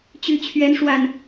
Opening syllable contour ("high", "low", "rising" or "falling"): low